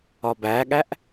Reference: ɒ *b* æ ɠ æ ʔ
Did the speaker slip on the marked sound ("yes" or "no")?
no